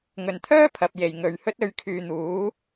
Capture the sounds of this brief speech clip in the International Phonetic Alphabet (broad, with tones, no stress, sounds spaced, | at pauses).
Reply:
ŋ ɵ˨˩ n t̪ʰ œː˥ pʰ ɐ˨ p̚ j e˨˩ j ŋ ɵ˨ ɥ h ɵ˥ t̚ ɵ˨˧ ɥ kʰ yː˨ n̪ uː˨˥